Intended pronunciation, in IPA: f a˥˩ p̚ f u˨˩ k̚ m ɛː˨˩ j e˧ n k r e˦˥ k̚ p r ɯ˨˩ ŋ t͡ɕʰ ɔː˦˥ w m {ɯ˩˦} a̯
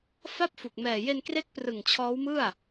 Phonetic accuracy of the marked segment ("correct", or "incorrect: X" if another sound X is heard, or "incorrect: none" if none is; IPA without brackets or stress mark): incorrect: ɯ˥˩